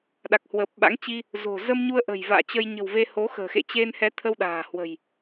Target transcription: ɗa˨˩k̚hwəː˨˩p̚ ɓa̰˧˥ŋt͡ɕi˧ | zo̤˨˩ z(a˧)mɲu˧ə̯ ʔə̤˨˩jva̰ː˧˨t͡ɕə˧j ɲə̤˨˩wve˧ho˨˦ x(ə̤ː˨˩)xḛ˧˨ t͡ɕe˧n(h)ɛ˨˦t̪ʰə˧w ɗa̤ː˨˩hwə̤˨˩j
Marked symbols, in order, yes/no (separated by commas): no, yes, yes